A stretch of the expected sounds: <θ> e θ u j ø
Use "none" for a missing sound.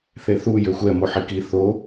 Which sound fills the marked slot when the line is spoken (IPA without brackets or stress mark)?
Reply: θ